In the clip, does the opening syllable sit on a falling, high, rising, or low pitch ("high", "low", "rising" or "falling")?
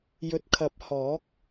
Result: rising